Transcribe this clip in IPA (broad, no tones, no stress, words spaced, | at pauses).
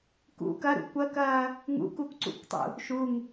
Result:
kṵ kɐɾṵ kʷɐkɐː | ŋṵkukʷǀṵkʷtˤṵ | ʃuŋ